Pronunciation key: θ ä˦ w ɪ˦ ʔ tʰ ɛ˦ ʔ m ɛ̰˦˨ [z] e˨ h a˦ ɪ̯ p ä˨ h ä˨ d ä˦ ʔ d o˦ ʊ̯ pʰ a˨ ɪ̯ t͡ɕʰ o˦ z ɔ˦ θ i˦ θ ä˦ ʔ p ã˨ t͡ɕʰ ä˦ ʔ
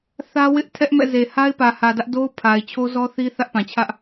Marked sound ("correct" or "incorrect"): correct